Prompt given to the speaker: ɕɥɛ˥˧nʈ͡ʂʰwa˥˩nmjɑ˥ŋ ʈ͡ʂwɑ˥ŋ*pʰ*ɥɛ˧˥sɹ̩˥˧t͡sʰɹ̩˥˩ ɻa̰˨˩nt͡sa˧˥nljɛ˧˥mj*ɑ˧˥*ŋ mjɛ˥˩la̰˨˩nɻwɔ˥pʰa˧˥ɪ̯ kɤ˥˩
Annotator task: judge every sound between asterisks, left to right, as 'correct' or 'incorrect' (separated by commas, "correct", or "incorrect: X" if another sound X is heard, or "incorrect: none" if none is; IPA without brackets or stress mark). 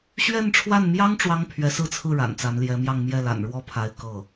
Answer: correct, incorrect: ɑ˥˧